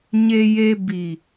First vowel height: mid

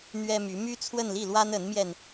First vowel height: mid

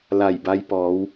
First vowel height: low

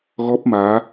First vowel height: mid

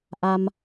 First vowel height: low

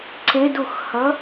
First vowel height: mid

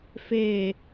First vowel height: mid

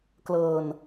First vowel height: mid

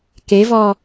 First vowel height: mid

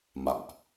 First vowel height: low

